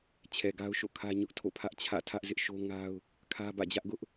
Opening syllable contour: low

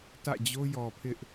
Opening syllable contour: falling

